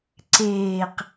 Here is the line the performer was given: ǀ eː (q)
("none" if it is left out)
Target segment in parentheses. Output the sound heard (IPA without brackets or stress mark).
q